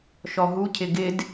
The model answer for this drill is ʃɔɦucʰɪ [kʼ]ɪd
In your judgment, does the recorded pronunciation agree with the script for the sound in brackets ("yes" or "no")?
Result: no